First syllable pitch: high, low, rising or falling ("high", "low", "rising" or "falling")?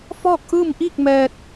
falling